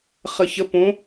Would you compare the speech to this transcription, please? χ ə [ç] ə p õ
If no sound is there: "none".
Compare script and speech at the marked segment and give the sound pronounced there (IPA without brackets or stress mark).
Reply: ç